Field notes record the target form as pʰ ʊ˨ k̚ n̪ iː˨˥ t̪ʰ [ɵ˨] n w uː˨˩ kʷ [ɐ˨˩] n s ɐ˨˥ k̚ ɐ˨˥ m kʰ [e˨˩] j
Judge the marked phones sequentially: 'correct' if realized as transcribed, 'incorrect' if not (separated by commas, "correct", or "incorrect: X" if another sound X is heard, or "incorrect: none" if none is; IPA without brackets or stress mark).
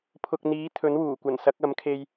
incorrect: ɵ˨˥, correct, incorrect: e˧